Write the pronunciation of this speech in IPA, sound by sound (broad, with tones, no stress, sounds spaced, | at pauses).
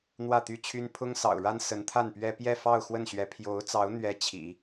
n̪ w ä˥˩ t̪ y˥ t͡ɕʰ y˥ n pʰ ʊ˥ ŋ s ɑ̰˨˩ ʊ̯ ɻ a˥ n s ə˧˥ n t̪ʰ a˥˩ n p ɥ ɛ˥ p j ɛ˥˧ f ɑ˥˧ ʊ̯ x w ə˥˩ n ɕ ɥ ɛ˧˥ pʰ j o˧˥ ʊ̯ t͡s ɑ˧˥ ʊ̯ n̪ ɥ ɛ˧˥ t͡ɕʰ ḭ˨˩˦